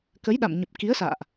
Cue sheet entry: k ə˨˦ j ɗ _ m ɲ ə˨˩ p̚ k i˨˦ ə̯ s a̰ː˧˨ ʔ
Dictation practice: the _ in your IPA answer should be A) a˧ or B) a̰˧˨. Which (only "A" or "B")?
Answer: B